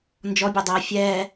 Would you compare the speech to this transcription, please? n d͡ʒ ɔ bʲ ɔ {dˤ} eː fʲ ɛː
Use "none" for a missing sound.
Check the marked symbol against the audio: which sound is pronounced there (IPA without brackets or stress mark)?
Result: dˤ